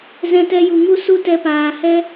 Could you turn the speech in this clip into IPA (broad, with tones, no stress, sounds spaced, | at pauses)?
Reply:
z ɛ̃˧ t ɛ˧ j u˨ ŋ u˦ s u˦ t ɛ˧ p aː˨ h ɛ˦